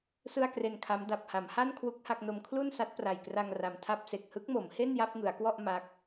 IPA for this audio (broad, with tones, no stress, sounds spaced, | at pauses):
s ɯ˥˩ a̯ k r e˧ n kʰ a˦˥ m d a˨˩ p̚ h a˩˦ m h a˥˩ n kʰ w u˥˩ k̚ h a˥˩ k̚ n o˧ m kʰ l u˥˩ n s a˦˥ t̚ p r a˨˩ j k r a˧ ŋ r a˨˩ m tʰ a˥˩ p̚ s e˨˩ k̚ h ɯ˦˥ k̚ m o˩˦ m h e˥˩ n j a˥˩ p̚ ŋ ɯ˩˦ a̯ k w ɔ˥˩ ʔ m a˦˥ k̚